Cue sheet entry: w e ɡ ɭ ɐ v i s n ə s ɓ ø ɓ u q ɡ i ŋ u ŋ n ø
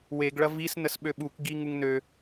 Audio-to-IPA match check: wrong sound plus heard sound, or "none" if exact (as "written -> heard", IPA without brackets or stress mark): q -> k